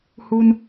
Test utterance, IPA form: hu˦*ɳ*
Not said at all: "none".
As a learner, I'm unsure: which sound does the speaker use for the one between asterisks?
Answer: n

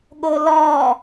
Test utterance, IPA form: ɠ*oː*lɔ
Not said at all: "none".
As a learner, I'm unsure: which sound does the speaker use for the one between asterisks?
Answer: o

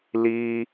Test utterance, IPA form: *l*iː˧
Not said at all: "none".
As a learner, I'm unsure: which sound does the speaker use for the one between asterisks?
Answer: l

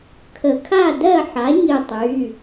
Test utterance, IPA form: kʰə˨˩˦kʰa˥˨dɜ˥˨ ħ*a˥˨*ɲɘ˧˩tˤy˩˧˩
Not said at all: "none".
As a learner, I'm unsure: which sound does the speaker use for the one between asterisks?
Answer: a˩˥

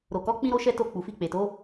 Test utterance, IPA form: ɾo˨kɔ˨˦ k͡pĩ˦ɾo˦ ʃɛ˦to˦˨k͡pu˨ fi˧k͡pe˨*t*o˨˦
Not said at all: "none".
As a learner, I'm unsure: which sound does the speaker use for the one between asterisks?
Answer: t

